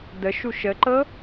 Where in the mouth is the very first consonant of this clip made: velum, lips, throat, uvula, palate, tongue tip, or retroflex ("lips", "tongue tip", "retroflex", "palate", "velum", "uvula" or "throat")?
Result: tongue tip